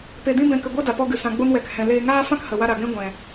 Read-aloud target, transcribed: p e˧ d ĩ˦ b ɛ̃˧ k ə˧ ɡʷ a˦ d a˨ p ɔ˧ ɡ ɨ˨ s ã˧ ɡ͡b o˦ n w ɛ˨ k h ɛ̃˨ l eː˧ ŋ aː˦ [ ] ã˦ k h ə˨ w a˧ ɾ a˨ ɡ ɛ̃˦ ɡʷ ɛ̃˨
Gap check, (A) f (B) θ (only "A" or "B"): A